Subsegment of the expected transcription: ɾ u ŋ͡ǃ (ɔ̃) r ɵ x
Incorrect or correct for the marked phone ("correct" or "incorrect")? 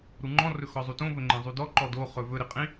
correct